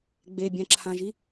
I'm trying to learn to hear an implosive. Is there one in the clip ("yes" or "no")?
no